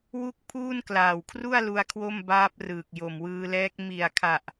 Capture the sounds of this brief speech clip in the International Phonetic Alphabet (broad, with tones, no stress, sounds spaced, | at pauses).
w u˥˩ k̚ pʰ uː˥˩ n k l aː˨˩ w kʰ r u˥˩ a̯ l u˦˥ a̯ kʰ w o˥˩ m b aː˦˥ p̚ r ɯː˨˩ k̚ j o˨˩ m w ɯː˧ l ɛː˦˥ k̚ m i˨˩ a̯ kʰ a˨˩ ʔ